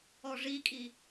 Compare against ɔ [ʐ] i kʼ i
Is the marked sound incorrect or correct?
correct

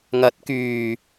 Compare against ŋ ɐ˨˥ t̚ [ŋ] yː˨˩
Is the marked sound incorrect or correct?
incorrect: k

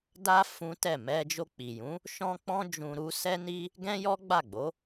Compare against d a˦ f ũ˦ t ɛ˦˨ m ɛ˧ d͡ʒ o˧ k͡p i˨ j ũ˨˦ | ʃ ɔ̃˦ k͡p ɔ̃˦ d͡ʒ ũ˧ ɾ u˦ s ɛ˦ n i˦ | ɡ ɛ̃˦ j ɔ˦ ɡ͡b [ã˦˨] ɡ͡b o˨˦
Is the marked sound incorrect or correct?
incorrect: a˦˨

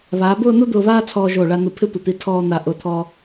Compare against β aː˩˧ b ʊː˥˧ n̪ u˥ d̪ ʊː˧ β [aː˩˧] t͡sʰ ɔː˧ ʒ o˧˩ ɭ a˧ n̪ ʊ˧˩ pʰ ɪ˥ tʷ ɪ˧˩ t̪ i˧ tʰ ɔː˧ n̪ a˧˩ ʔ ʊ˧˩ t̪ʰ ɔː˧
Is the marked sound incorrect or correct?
incorrect: aː˥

